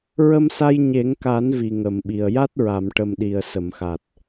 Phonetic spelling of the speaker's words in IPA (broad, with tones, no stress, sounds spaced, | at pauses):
ɹ ə˧ m s a˧ j ɲ e˨˩˦ ŋ k a˨˩˦ n v i˨˩ ŋ ə˨˩˨ m ɓ i˨˩ ə̯ j a˦˥ t̚ ɹ a˨˩˨ m ʈ ə˨˩ m ɗ i˨˩ ə̯ s ə˨˩˨ m x a˨˩ t̚